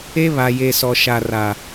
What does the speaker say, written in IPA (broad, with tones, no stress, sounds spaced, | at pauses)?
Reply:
e˦ β a˨ j e˨ s ɔ˨ ʃ a˨ r a˨